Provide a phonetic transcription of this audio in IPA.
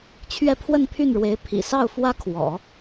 t͡ɕʰɥɛ˥˧pʰwə˥˧npʰy˥˩nɻwe˧˥ɪ̯ pʰḭ˨˩sɑ˥˩ʊ̯fwä˥ kʰwɔ̰˨˩˦

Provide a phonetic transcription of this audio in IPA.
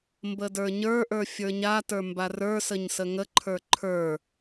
mbədə˞ɲə˞ʔə˞ fʲə˞ɲatə˞ mbarə˞səɲ səŋəǃʰə˞ ǃʰə˞

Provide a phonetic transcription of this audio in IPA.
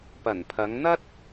pɐ˨˩npʰɐ˨˧ŋn̪ɐ˥t̚

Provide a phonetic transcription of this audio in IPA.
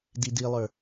didilˠə˞

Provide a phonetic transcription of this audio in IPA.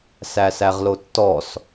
sæsæʁlotːɔs

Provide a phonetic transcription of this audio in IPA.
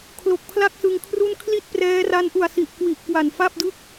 kʰlo˨˩k̚pʰla˥˩k̚sɯ˧ŋkʰru˥˩n kʰli˥˩t̚prɛː˦˥ra˦˥nʔu˨˩a̯ si˨˩ʔkwi˨˩ʔ kwa˨˩nfa˥˩p̚dɯ˥˩k̚

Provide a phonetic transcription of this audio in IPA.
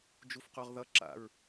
d͡ʒufqoʁðʌ ǁa̰ɹ

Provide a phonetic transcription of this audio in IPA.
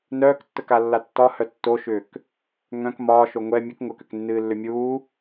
nœːktːəkalːa tːɒhœ tːoʃʏːk | ŋœ̃k mɒːʃo ŋʷɛ mʲɨk ŋʷəkʏknːɨːlːʏ mʲuː

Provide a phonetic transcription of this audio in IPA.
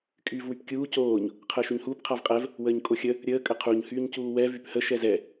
kʼyːvwypkʲuː coːɲ | qʰəːʃyɲhuːp qʰavqʼɛv | wəːɲkʼoxʲə | ɾʲəː kʼəqʰuɲ hyːɲcuːwɛ vyphə ʃɛzɛ

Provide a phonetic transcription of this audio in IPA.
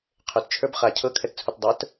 qʰøt t͡ʃʰə˞bχa cʰɤ kʰɛtt͡sʰutdˤə˞t

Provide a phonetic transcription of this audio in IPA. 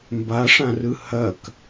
mbaʂãrɯ hɐk

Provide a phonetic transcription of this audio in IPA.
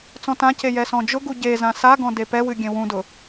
t͡sɔ̃tãce jɛsɔ̃d͡ʒʊɡu ɟezã saɡɔ̃ depɛwɨ ɡʲẽwũdʊ

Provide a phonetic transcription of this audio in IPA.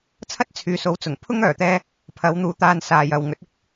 t͡sʰɐ˥t̚t͡sʰyː˨so˨˧w t͡sʊ˨˩ŋpʰʊ˥ŋ œː˨˩t̪ɛː˧ | pʰɐ˨˧wn̪uː˨ t̪aː˧n saː˨jɐ˨wŋɵ˨˥t̚ ɪ˥k̚

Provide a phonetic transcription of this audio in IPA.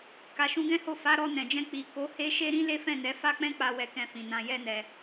ka˨ʃũ˧ɡɛ̃˦ho˦˨ fa˨˦ ɾɔ˧nɛ̃˨d͡ʒɛ̃˧ k͡pi˨ ko˨˦he˦ʃe˦ ɾĩ˦le˦fɛ̃˦˨nɛ˨˦ fa˦k͡pɛ̃˦k͡pa˧ wɛ˧kɛ̃˧fĩ˨ nã˧jɛ˦nɛ˧

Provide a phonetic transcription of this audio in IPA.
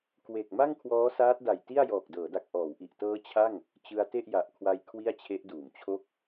kwe˨˩k̚ ma˥˩ŋkʰwɔː˦˥saː˦˥t̚da˨˩j ti˥˩a̯jɔː˨˩k̚dɤː˩˦da˨˩k̚ ʔɔː˩˦wʔi˨˩ʔtɤː˦˥ t͡ɕʰa˥˩ŋ | t͡ɕɯ˧a̯te˥˩ʔja˨˩ʔkʰwa˧j kʰwi˥˩a̯t͡ɕʰe˦˥ʔduː˩˦mt͡ɕʰo˥˩k̚

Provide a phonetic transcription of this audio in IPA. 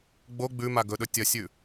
ɡ͡bo ɡ͡bʉ maɡɵɗɵ tʲɐsʲʉ

